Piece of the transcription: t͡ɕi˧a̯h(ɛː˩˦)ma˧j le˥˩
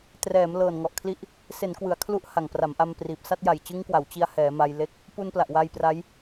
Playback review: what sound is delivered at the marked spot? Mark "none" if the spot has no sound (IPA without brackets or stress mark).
ɛː˩˦